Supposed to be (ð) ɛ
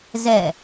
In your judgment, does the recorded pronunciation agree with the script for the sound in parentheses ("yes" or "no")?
no